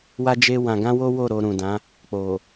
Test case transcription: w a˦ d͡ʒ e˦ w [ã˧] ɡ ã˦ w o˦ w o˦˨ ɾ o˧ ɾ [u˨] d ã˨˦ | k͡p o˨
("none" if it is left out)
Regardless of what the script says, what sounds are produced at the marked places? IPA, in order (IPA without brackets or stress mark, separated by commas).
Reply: ã˧, ũ˨